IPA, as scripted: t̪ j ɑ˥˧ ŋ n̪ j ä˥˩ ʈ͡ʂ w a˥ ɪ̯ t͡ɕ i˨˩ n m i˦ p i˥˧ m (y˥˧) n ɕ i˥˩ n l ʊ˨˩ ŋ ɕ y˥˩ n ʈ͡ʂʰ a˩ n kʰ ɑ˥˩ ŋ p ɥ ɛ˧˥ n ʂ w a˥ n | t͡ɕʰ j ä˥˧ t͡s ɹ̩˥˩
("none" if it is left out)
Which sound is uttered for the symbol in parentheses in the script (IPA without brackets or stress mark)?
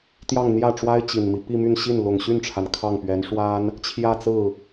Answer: y˥˧